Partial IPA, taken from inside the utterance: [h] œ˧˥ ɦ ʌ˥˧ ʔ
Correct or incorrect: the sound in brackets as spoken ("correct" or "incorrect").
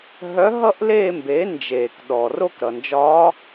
incorrect